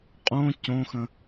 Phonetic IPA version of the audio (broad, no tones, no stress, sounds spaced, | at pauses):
qʼ õ c õ x ə̃